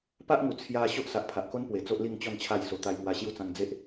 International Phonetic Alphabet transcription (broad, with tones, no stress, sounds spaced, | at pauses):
p a˦ ʔ ŋ u˨˩ t͡sʰ j a˧ ɕ o˦ ʔ s a˨ ʔ pʰ a˨ ʔ k o˦ n p w e˨˩ t͡s o˦ ʔ l i˥˧ ŋ t͡ɕ ɔ˥˧ n t͡ɕʰ a˥˧ j s o˧ t̪ a˧ j ŋ w a˧ ɕ j u˦ t͡s ã˧ ŋ d͡z e˦ ʔ